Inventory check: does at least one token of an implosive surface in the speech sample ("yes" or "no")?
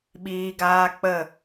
yes